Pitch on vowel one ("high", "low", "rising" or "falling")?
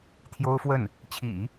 high